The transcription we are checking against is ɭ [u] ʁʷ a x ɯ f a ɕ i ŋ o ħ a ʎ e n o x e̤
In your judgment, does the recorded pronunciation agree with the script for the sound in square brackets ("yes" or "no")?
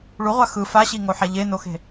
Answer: yes